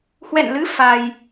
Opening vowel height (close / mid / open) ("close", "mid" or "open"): mid